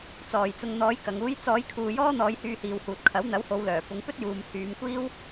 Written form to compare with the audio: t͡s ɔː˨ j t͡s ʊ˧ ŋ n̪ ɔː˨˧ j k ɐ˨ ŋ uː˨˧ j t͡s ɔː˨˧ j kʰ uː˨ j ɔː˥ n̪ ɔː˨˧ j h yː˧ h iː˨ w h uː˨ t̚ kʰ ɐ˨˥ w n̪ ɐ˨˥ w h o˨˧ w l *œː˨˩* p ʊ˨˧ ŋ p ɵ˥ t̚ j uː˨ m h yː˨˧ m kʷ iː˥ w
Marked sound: correct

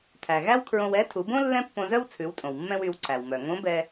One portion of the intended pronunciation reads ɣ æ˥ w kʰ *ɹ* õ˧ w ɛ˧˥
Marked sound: correct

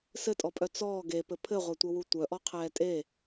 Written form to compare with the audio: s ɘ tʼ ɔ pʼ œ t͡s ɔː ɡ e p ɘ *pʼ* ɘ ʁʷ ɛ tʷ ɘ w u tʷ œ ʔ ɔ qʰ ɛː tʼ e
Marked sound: incorrect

